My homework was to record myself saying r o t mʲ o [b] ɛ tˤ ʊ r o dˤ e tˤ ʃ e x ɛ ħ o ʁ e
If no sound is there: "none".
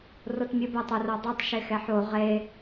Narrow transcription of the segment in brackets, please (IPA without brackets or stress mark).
b